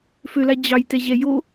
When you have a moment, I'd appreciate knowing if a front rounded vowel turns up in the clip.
yes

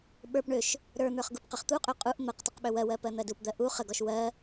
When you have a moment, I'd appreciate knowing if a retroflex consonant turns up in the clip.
yes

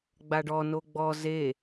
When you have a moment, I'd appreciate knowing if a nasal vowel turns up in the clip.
no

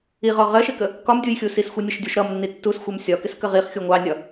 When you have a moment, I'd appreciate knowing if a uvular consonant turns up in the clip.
yes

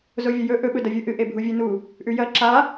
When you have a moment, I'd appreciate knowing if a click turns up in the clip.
yes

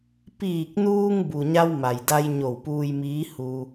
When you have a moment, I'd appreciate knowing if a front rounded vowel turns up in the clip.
no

